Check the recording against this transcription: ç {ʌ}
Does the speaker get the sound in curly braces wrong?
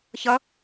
no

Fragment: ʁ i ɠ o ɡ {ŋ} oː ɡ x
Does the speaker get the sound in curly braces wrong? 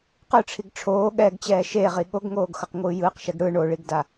no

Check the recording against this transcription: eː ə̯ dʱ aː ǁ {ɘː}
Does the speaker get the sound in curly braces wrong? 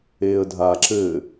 no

